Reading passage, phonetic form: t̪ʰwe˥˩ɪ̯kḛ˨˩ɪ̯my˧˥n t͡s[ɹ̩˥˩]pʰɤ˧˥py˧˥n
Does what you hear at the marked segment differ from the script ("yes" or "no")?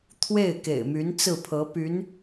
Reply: no